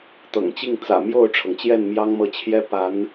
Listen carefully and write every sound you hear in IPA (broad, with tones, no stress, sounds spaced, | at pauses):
t̪ ɤ̰˨˩ ŋ t͡ɕ i˥˩ ŋ t͡s ä̰˨˩ m j o˥˩ ʊ̯ ʈ͡ʂʰ ɤ˩ ŋ t͡ɕ j ɛ˥˩ n m j ɑ˥ ŋ m ɤ˥˩ t͡ɕʰ j ɛ˥ p a˧˥ n